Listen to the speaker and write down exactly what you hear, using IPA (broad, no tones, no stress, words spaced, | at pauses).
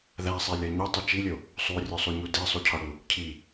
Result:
ðæsˤelʲɒ ɲutˤi t͡ʃilʲo | sˤurʲosˤuɲu desˤucʰɒɽu | cʰi